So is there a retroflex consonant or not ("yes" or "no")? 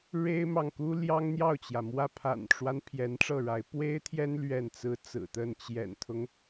yes